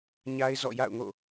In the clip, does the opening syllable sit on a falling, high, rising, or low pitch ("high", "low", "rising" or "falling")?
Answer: high